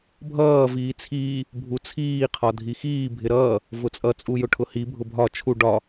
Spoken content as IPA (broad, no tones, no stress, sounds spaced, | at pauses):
bʱ ʌː v iː t͡sʰ iː | bʱ u t͡sʰ iː qʰ ɒ dʱ i x iː bʱ ɪ ɾ ʌː | v ʊ t͡sʼ ʌ t͡sʼ u j ʊ ʈʰ ʊ h i bʱ ʊ bʱ ɒ t͡ʃʰ u ɖ ɒ